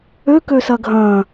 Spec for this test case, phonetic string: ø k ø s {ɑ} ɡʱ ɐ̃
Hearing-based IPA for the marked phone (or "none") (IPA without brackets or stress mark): ɐ